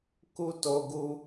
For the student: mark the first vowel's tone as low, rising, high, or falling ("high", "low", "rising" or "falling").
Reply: high